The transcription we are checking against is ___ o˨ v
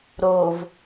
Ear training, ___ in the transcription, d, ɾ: ɾ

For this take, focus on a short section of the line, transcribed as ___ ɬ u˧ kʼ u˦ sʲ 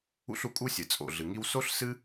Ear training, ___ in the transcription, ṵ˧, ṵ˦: ṵ˦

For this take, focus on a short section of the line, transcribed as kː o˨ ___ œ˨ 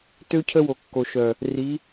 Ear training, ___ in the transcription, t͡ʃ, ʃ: ʃ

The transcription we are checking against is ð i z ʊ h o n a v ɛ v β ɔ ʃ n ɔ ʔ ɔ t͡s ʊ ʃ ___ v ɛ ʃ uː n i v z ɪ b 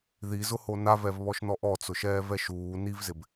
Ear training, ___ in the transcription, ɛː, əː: ɛː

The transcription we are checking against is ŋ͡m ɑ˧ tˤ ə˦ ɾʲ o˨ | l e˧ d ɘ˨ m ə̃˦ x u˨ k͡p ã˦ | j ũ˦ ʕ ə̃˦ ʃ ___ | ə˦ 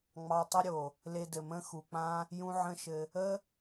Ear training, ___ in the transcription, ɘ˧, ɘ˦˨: ɘ˧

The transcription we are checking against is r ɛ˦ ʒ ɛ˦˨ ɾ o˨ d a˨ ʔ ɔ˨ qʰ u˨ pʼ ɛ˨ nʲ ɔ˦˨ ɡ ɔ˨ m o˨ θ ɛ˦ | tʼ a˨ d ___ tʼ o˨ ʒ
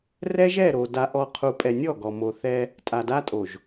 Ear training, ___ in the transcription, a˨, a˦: a˦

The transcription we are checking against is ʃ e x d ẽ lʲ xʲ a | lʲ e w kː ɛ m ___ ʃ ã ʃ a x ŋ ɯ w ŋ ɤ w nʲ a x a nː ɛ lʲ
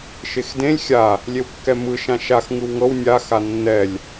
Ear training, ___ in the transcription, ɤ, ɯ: ɯ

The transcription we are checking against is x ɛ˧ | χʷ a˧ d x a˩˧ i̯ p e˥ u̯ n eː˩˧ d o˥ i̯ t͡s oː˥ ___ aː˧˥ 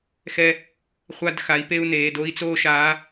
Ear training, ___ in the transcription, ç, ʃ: ʃ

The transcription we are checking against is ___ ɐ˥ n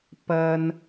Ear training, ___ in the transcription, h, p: p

